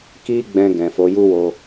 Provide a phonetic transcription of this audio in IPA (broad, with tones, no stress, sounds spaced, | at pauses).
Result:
k i˦ ɡ͡b ɛ̃˧ ɡ ɛ̃˨ f o˨˦ j u˦ w o˧